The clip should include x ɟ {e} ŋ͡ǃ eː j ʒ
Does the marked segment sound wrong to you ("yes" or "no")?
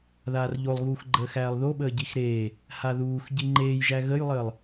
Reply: yes